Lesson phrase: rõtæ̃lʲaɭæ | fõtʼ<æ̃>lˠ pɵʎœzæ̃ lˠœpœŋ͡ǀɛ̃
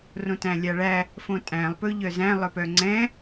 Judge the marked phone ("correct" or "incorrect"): correct